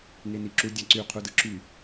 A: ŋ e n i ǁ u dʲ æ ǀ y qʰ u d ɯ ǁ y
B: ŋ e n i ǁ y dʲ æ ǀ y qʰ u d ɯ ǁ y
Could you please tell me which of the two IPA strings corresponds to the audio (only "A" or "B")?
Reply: A